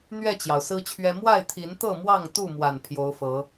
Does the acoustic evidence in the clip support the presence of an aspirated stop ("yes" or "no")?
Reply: yes